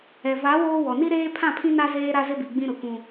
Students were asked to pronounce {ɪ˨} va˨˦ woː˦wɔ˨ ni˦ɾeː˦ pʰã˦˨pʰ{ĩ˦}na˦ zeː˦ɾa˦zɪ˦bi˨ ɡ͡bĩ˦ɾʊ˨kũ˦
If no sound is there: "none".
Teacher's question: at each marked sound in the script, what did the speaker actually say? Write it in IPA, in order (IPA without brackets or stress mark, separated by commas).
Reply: ɛ˨, ĩ˦